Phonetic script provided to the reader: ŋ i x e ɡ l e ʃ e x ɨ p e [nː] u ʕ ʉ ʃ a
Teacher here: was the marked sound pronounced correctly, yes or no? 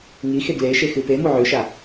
no